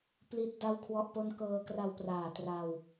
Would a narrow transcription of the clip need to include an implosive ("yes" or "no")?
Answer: no